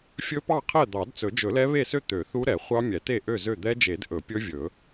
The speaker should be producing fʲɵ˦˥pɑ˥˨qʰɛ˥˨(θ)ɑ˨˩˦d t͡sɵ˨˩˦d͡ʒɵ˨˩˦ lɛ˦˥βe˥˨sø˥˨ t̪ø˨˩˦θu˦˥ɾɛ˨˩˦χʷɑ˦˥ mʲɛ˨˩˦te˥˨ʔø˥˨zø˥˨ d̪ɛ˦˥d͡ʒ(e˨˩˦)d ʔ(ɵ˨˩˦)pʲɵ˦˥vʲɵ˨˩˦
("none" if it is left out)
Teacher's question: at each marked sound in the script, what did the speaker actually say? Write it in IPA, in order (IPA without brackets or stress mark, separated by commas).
d̪, e˨˩˦, ɵ˨˩˦